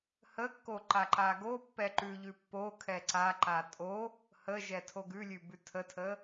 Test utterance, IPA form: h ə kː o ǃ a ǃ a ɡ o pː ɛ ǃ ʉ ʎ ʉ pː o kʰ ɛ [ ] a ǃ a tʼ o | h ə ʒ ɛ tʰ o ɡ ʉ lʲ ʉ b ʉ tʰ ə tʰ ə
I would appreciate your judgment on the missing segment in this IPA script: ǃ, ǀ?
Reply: ǀ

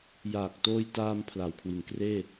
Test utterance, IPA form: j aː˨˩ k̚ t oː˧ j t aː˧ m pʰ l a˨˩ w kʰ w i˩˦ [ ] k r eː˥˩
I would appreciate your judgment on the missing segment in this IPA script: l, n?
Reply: n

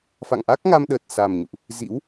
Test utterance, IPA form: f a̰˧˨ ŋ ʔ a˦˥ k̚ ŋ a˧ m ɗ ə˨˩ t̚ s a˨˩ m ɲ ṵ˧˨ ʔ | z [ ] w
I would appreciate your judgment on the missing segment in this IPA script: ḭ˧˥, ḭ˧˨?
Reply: ḭ˧˥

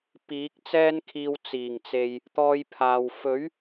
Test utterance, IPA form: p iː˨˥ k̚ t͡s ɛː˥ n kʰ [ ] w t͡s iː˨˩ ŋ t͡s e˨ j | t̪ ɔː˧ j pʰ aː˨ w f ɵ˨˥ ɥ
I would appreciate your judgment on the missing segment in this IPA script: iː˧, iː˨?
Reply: iː˧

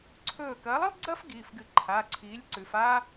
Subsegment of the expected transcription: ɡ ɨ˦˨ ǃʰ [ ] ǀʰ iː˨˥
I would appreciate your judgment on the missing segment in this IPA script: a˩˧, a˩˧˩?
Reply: a˩˧˩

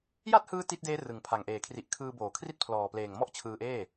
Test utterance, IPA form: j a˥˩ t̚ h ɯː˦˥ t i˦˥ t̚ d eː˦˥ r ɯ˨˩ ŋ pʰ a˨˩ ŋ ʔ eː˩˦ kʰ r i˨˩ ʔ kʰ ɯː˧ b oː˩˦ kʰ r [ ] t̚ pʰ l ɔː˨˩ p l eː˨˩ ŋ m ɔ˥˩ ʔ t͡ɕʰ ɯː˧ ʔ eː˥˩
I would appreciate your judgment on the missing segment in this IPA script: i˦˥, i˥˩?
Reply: i˥˩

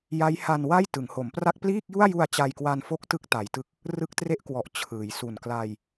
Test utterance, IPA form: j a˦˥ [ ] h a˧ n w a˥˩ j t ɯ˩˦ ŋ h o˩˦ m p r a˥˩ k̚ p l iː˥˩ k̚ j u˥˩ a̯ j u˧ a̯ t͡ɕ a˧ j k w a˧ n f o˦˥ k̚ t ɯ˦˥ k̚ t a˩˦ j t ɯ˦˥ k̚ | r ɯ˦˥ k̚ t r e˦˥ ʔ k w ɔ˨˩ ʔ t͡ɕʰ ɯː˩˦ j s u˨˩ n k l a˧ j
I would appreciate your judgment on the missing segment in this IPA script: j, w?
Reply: j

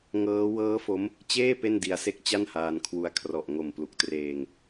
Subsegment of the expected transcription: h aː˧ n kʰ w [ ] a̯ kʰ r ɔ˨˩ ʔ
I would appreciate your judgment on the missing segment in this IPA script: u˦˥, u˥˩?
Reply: u˦˥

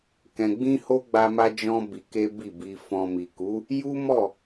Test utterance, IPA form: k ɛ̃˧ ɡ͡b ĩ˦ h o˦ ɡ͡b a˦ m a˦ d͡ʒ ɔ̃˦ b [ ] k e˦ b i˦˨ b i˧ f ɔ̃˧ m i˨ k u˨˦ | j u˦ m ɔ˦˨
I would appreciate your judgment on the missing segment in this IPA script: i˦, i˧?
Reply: i˧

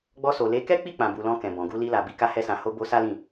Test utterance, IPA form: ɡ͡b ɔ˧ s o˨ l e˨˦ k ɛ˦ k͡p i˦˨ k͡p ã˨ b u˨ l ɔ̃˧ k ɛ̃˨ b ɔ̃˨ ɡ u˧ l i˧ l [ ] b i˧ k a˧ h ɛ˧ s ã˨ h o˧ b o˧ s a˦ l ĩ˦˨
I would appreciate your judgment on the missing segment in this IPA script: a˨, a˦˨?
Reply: a˨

